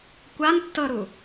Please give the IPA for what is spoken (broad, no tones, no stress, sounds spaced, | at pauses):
kʷ a n tː ɤ ɾ u